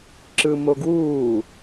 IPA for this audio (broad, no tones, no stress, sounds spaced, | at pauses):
ǁ ɯ m o ɡ w uː